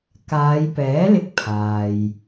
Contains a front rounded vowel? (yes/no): no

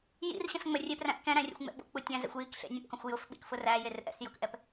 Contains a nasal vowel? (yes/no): yes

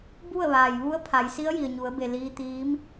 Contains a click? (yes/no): no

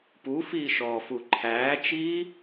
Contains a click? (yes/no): yes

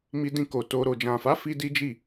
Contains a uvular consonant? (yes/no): no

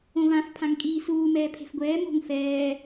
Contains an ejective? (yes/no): yes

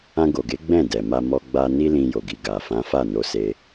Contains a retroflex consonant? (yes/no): no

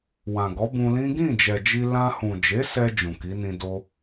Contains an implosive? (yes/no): no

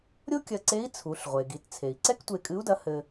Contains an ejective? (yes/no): yes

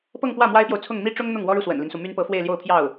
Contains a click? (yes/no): no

